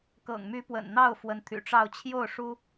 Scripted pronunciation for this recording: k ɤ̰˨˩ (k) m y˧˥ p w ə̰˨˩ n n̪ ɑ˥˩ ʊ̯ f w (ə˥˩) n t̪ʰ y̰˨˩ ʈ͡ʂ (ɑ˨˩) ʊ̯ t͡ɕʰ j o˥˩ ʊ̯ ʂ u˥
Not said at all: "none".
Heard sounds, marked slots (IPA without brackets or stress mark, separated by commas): ŋ, ə˧˥, ɑ˥˧